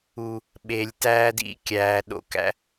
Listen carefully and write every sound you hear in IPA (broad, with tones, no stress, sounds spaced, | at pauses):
u˨ | ɓ e˨ lʲ t æː˦ d ḭ˦ kʲ æː˨ ɗ o̰˦ k æ̰˦